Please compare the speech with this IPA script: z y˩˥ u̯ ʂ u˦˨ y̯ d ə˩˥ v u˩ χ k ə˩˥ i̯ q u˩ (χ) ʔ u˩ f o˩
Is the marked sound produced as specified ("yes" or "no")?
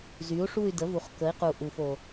no